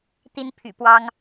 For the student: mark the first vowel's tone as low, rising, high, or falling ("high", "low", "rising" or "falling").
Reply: high